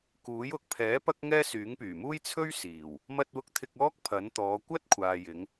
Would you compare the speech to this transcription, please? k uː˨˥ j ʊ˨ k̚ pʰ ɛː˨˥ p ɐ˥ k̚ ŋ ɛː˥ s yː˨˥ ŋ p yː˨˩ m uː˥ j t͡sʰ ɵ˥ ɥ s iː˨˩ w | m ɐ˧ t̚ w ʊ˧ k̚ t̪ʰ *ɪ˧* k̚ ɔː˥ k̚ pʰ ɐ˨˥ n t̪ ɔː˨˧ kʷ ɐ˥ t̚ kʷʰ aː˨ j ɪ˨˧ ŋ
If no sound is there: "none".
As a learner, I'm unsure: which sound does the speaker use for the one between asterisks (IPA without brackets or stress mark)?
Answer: ɪ˧